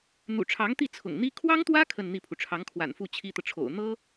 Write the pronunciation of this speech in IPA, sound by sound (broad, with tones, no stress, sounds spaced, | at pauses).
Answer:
n̪ ṵ˨˩ ʈ͡ʂʰ ɑ˧˥ ŋ t̪ i˥˩ t͡sʰ ʊ̰˨˩ ŋ n̪ i˥ kʰ w ɑ˥ ŋ t̪ w ä˥ kʰ ə˥˧ n n̪ i˥˩ pʰ u˩ ʈ͡ʂʰ ɑ˧˥ ŋ kʰ w a̰˨˩ n f u˥˩ t͡ɕʰ i˥ t̪ ɤ˨ ʈ͡ʂʰ o̰˨˩ ʊ̯ n̪ ɤ˥